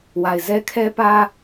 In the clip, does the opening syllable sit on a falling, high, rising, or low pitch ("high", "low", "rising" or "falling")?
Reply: low